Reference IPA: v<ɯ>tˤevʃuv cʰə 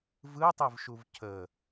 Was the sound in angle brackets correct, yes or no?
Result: yes